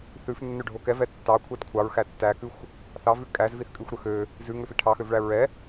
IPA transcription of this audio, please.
θ ʉ f nː ø ɖʱ o k ɛ v ɛ tː ɑ kʷʰ ɛ d kʷʰ ɑ ɹ x æ tː æ k ʉ xʷ | θ ɑ v ʉ kʼ æ z v i θ kʼ ʉ xʷ ɾ ø x ø | z ʉ ŋ ø f i ʈʰ ɑ x ø v ɭ æ ɹ ɛ

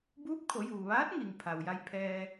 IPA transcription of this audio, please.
b uː˧˥ p̚ kʰ o˩˧ j uː˩ ʋ aː˧˥ t̚ ŋ i˩ ŋ pʰ a˩ w j a˧ j pʰ ɛː˧

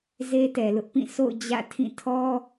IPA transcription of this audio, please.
z e˦ t ɛ˨ l ʊ˦ ʔ p ĩ˦˨ sʰ o̰˦˨ ʊ̯ d͡ʑ ä̰˦˨ tʰ ĩ˦˨ tʰ ɔ˦

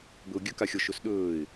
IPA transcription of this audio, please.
b ɵ ʊ̯ ɡʲ ɵ k a xʲ ɔ ʃ ɵ s ɗ ɵː ɪ̯

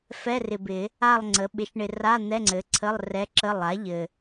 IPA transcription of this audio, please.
f ɛ˧˥˧ r ɪ˨ b ɪ˨˩˦ | a˥˧ lˠ ŋ͡ǀ ə˩˥ ɓ ɪ˩˥ ʃ ɳ ɪ˨ r a˧˥˧ n̪ ɛ˧˥˧ ŋ͡ǀ ɘ˩˥ ǀʰ ə˧˥˧ lˠ r ɛ˧˥ ǁ ə˧˥˧ lˠ a˩˥ ʎ ɘ˨

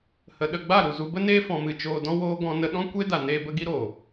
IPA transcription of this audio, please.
h ə˧ ɗ ə˧ ɡ͡b a˦˨ ɾ u˨ z u˧ b ə˦ n eː˦ f ɔ̃˧ m ɨ˧ t͡ʃ oː˧ d ɔ̃˦ w oː˧ ɡ ɔ̃˧ n ə˧ ɗ ɔ̃˦ kʷ e˦ d a˨ n eː˧ b ə˧ ɡ i˦ ɾ oː˨

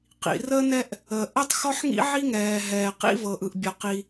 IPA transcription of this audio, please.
q ḭ˩ r ə˥ n ɛ˥ ʔ | ə˩ ʔ ə˥ tˤ x ɔ˥ ħ ŋ ḭ˥ ʕ i˥ ŋ ɛː˩ ɦ ɛː˩ q ḭ˥ v ɤ˩ ʔ ɯ˩ ʔ bʲ ɤ˩ q i˩

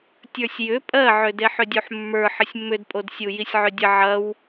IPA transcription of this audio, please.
tʲ ə˞ sʲ j ʏ pʼ ɜ ʕ ʏ d e ħ ʏ dʲ u ħ mː ə˞ ħ ə sʲ mː ʏ d pʼ o d sʲ u j i sʲ ʕ ʏ dʲ ə ʕ ɐ w

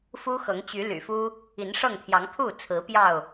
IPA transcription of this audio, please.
f u˦ x ɤ˨˦ ŋ t͡ɕ y˨˦ l y̰˨˩ f u˦ | i˨˦ n ʂ ɤ˥˨ ŋ t̪ʰ j ɑ˨˦ ŋ pʰ u˥˨ t͡sʰ ɹ̩˨˦ p j ɑ˥˨ ʊ̯

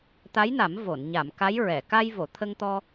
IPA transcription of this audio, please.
t̪ a˧˥ j n a˨˩˦ m v o˨˩˨ n ɲ a˨˩˨ m k a˧˥ j ɹ ɛ˨˩˨ k a˧ j v o˨˩˨ t̪ʰ ə˧ ŋ t̪ ɔ˧

